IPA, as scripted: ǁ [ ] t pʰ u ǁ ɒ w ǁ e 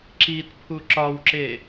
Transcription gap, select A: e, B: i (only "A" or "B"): B